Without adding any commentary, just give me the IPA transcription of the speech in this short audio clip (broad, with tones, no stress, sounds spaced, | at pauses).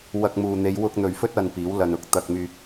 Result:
w ɐ˧ k̚ m uː˨ n̪ e˨˧ j w ʊ˧ k̚ n̪ ɵ˨ ɥ f ɵ˥ t̚ ɐ˧ n p iː˨˥ w l ɐ˧ n ʊ˥ k̚ t̪ ɐ˧ k̚ m yː˧ k̚